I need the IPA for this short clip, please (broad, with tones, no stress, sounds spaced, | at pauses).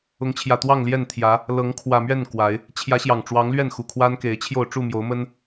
ʊ˨˦ ŋ t͡ɕʰ j ä˨˩ t̪ w ɑ˥˨ ŋ l j ɛ˥˨ n t̪ʰ j ä˨˦ | l ɤ˨˦ ŋ kʰ w ä˨˩ m ɥ ɛ˥˨ n k w a˨˦ ɪ̯ | t͡ɕʰ j ä˨˦ ɕ j ɑ˨˩ ŋ ʈ͡ʂ w ɑ˨˦ ŋ l ɥ ɛ˥˨ n x u˨˩ kʰ w a˦ n k e˨˦ ɪ̯ t͡ɕʰ j o˥˨ ʊ̯ ʈ͡ʂ u˥˨ m j o˨˦ ʊ̯ m ə˦ n